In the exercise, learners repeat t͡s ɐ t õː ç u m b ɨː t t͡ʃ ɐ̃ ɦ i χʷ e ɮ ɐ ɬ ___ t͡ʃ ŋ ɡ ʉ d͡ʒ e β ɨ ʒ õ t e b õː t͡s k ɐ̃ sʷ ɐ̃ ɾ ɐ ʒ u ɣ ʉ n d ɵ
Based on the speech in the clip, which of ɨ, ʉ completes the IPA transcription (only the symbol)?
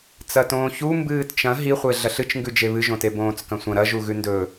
ɨ